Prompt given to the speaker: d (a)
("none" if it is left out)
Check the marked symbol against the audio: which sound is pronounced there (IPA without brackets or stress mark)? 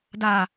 a